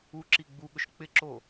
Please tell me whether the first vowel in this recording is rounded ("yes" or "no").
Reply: yes